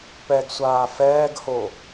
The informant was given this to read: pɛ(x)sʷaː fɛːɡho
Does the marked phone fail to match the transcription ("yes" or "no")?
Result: yes